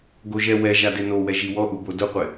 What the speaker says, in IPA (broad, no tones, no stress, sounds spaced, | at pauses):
ɡ o ʒ ɛ w ɛ ʒ a d e n o w ɛ ʒ i w ɔ ʔ u b o d ʊ qʷ ɪ